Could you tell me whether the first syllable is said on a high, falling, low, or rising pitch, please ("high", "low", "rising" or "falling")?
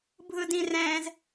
high